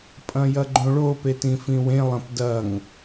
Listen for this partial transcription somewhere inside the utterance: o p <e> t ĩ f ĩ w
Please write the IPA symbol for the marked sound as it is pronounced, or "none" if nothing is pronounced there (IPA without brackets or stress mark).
e